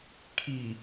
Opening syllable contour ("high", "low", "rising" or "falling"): low